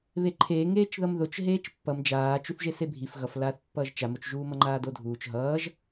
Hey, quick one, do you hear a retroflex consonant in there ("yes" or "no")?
no